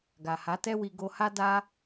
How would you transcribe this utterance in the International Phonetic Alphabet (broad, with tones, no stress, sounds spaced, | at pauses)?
ɡ a˨ h a˨˦ t ɛ˦ w i˧ ɡ o˧ h a˦ d a˦